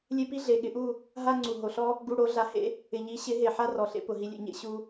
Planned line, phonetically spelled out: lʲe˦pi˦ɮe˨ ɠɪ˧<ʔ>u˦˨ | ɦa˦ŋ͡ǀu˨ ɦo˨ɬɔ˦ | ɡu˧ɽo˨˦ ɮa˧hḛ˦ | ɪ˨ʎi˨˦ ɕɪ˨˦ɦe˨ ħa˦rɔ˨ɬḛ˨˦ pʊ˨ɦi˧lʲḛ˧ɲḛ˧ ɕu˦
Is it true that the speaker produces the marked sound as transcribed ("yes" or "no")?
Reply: yes